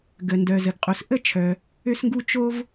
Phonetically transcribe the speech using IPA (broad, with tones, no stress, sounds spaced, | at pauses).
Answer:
ɡ ə˩ n d œ˩ z ə˩ ɡ qʼ u˩ s ʔ ə˥ t͡ʃʰ œ˩ | ø˥ s ŋ ɡ u˥ t͡ʃ o˥ v